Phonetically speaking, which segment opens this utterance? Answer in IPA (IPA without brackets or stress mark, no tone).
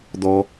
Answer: d̪